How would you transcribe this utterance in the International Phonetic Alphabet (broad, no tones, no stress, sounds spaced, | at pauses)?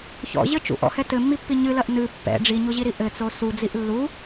ç ɔ̰ ʑ ɘ t͡ʃ ṵ ʔ ɔ̰ h ɛ t ɘ mː i pː i ɲ ɨ l ɐ ʔ n ɨ pː ɛ̰ ɖ͡ʐ i ɲ u ʑ i ɾ i ʔ ɘ t͡s o s u d͡z i ʔ lː u